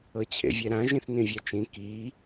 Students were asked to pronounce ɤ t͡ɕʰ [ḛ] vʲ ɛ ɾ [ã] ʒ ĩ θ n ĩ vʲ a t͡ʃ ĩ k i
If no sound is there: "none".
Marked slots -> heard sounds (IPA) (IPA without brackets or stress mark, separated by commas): ḛ, ã